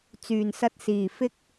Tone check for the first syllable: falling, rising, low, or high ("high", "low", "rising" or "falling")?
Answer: low